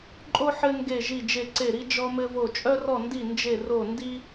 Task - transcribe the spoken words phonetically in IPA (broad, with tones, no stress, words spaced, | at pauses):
ǃʼo˥ ħɘ˥ ŋɡe˥˧ʒi˥˧d͡ʒe˥˧ ǀe˥˧ɾi˥ d͡ʒɔ˥mɘ˥vo˥˧ t͡ʃʼœ˥rɔ˥˧ndi˥˧ nd͡ʒe˥˧ro˥˧ndi˥